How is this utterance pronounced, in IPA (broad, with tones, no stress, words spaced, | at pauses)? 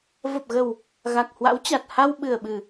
və˨˩p̚ɣə˨˩w | ɣa˨˩k̚hwa̰˧˥wt͡ɕa˨˩t̚ ha˧wɓɨ˨˩ə̯ɓɨ˨˩